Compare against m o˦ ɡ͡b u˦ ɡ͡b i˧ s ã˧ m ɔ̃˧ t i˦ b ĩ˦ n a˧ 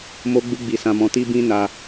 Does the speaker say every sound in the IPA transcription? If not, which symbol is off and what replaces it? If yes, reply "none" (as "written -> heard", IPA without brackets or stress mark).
none